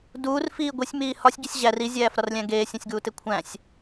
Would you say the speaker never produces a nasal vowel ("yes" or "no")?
no